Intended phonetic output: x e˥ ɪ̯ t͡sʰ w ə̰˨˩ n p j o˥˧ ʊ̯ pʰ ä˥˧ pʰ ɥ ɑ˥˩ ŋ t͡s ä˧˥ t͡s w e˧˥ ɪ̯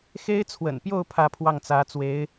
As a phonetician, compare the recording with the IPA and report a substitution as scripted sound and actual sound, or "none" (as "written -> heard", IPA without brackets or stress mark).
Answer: ɥ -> w